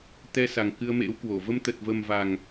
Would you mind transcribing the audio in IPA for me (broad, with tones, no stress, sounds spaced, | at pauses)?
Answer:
t̪ ɛ˧ s a˨˩ ŋ k ɨ˧ ə̯ m ḛ˧˥ w k w o˧˩ v ə˧ m t̪ ə˨˩ t̚ v ə˨˩ m v a˨˩ ŋ